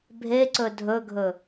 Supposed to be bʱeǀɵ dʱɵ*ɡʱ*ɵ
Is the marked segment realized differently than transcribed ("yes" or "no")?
no